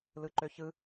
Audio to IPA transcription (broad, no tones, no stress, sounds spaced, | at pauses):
l ɯ ǃ ø ç ɯ